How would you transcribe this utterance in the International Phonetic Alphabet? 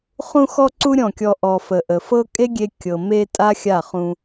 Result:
χ ũ˧ x ɔ˧ ǀ u˧ ɾʲ ɔ̃˦˨ kʲ ɔ˧ ʔ ɔ˨ f ə˨ ʔ ə˨ f ɤ˦ kʼ e˦ ɡʲ e˧ kʲ ɤ˨ m e˧ tʼ a˦ xʲ a˦˨ χ ũ˧

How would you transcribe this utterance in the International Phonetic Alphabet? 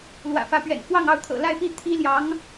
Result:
l w ä̰˨˩ f ä˧˥ p ɥ ɛ̰˨˩ n f w ɑ˥˧ ŋ ɑ˥˩ ʊ̯ t̪ʰ ɤ̰˨˩ l a˥˧ ɪ̯ p i˥˩ t̪ʰ i˥ l j ɑ˧˥ ŋ

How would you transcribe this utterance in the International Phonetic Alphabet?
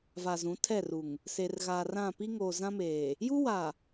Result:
v a˨ z ũ˨˦ tʰ ɛ˦˨ r u˨ ŋ | s e˨ r ɣ aː˨ r ã˦˨ p i˦ ŋ oː˨ z ã˦ m eː˨ | j u˦ w a˨

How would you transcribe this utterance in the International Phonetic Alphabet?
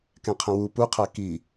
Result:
k ɛ̃ qʰ ə̃ w u p u qʰ æ k i

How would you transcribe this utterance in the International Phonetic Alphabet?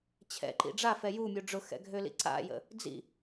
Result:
t͡ɕʰ ɛ̰ ǃ ḭ ɖ͡ʐ a f ɛ j u mʲ u ɖ͡ʐ ʊ x ɛ̰ ɡʱ ø l ḭ ǀ a̰ j ə̰ | d͡z ḭ

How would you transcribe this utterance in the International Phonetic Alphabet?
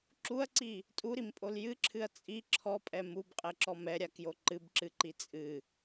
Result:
ǁ u ɐ̯ ǀ i | tʼ u ɾ i m pʼ o l j ɨ ǁʰ ɨ ɐ̯ t͡sʼ i ǁʰ ɔ pʼ ɛ m u b qʼ ɛ ǁ ɔ m ɛ ɾʲ a k j o ǃ ɨ b ǁ ɨ ǃ i t͡sʼ ɨ

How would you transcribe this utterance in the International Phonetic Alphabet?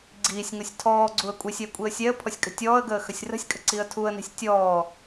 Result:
ɡ͡ǀ iː sʲ ŋ o sʲ tʰ ɔː ɡ͡ǀ u ə̯ kʷʼ i sʲ ɛ kʷʼ i ə̯ sʲ ɛ ə̯ pʰ ɔ sʲ kʼ ə̤ tʲ ɔː ə̯ ɡ əː x ə sʲ r ə̤ sʲ kʼ ə̤ ǀ i ə̯ tʰ u ə̯ n i̤ sʲ tʲ ɔː

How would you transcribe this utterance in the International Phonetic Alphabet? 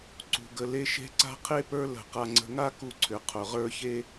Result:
ǀ ṳ˧ ɡ ə˧ l e˥ ʃ e̤˥ ǀ a̤˥ qʰ e˥ p ə˞˥ l ə̤˧ q a˧ ŋ͡ǀ ə̤˧ ŋ a˥ k u˧ ǀʰ ʏ˩ qʰ ʊ˩ ʁ ə˞˥ ç e˥

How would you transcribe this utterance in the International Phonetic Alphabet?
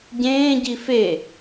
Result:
ɟ ẽː ɟ i f e

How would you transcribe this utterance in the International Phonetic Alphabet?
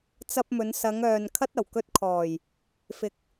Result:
t͡s ɐ˧ p̚ m ɵ˨˧ n s ɐ˨˧ ŋ œː˨ n kʰ ɐ˥ t̚ ɐ˨˩ w k ɵ˥ t̚ kʰ ɔː˨˩ j | f ɪ˨ k̚

